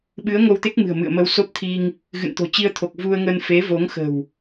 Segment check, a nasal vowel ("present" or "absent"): absent